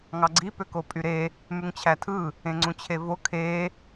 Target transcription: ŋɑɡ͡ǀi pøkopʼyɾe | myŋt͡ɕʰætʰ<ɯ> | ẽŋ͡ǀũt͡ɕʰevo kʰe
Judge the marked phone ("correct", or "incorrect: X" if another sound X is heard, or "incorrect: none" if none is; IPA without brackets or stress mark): correct